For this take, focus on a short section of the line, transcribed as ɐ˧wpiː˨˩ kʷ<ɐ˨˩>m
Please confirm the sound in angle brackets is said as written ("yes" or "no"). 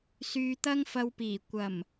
yes